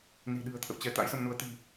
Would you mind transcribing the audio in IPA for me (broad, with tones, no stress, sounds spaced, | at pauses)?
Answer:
n i̤˨˩ ɗ ɨ̤˨˩ ə̯ t̪ʰ ə̰˧˨ w t͡ɕ ɛ˨˦ t̪ a̰˧˥ j s ə˧ m n u˨˦ ə̯ t̪ i̤˨˩